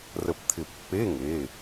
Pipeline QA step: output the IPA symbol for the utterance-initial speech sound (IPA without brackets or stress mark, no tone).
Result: r